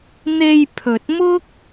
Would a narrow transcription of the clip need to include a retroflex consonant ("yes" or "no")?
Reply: no